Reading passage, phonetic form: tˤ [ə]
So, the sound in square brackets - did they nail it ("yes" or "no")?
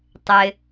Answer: no